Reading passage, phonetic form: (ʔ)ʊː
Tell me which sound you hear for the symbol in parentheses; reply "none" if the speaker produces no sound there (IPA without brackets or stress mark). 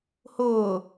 h